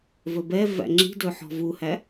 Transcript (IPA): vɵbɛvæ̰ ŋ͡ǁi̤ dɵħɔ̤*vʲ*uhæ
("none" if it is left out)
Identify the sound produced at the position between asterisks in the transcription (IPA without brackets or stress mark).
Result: v